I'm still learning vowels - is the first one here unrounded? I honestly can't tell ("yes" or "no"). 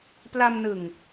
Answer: yes